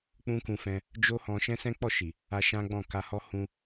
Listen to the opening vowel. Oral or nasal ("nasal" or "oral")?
nasal